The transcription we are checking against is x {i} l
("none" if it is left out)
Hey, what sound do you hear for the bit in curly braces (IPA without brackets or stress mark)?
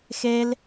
e